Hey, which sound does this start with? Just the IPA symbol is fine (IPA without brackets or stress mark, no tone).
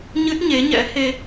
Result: ɲ